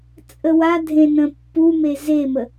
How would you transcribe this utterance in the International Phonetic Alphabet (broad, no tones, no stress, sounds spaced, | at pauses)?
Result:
t͡sʼ ə w a dʱ ẽ n ə̃ pː u m e z e m ə